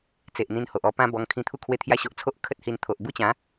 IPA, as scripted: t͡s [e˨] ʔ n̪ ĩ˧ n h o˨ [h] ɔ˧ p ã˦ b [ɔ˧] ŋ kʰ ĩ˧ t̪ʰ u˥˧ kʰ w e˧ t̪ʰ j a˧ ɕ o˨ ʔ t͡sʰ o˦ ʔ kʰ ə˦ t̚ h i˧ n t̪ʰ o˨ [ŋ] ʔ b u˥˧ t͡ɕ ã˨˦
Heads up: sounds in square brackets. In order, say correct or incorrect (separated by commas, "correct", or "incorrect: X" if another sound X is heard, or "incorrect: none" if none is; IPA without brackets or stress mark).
correct, incorrect: ʔ, correct, incorrect: none